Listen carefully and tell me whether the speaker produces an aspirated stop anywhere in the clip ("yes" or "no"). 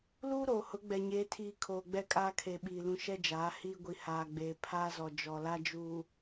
yes